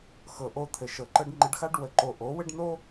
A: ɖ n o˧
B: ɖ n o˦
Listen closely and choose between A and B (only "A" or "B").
B